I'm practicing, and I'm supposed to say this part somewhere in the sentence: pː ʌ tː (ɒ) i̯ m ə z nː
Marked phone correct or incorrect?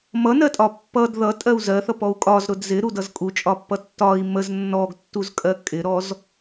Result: correct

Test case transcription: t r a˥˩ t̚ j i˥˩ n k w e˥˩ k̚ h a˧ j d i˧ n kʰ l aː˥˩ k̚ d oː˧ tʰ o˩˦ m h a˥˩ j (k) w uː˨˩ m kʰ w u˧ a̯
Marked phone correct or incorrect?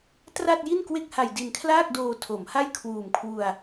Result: incorrect: kʰ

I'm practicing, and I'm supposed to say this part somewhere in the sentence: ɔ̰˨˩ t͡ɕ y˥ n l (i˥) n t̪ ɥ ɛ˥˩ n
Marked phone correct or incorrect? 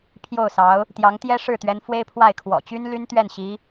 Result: incorrect: y˥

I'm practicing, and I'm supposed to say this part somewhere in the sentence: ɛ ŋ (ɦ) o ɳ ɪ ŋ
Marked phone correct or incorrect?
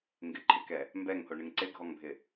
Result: incorrect: h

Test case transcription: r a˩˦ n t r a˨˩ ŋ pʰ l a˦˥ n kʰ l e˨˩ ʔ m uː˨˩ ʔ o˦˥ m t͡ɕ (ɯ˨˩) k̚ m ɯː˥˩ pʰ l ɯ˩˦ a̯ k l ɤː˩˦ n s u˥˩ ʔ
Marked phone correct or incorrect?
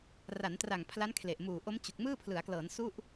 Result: incorrect: u˨˩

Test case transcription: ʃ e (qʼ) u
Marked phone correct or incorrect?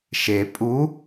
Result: incorrect: pʼ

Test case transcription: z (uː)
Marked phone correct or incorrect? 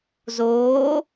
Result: incorrect: oː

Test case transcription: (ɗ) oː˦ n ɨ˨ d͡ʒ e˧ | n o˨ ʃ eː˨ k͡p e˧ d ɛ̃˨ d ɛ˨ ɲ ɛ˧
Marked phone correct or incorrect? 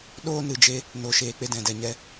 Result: correct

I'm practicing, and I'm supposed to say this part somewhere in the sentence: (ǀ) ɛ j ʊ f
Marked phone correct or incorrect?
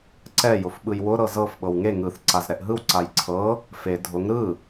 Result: correct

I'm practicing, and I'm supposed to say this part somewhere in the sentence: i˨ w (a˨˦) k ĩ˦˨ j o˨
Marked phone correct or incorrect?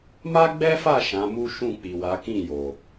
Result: correct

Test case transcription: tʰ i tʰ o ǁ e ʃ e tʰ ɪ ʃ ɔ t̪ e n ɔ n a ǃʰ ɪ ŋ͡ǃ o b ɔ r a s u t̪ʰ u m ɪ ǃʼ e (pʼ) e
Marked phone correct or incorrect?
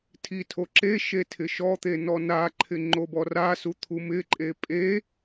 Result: correct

